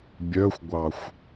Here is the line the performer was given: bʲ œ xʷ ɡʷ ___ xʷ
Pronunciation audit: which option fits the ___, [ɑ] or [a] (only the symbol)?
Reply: ɑ